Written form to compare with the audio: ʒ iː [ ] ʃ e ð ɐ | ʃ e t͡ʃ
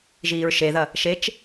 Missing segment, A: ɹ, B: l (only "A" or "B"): A